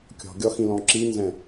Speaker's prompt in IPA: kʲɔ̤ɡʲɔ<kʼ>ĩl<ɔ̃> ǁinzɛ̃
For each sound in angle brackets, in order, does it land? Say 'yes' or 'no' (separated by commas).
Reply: no, yes